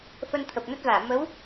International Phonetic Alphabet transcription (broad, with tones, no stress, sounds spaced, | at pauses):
f ə˧ n t̪ʰ ə˨˩ p̚ n ə˦˥ t̚ v aː˧˩ m ə˨˦ w